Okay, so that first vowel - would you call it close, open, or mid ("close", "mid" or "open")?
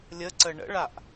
mid